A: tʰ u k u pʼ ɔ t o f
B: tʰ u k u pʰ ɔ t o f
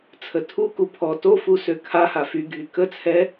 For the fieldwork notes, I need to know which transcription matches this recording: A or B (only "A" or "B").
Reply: B